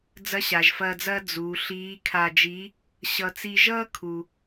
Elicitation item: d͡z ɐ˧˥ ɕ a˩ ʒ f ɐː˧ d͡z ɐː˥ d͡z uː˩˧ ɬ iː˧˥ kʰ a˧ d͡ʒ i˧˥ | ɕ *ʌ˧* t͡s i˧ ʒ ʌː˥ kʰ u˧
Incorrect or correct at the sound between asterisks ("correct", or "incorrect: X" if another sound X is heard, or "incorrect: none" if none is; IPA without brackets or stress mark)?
correct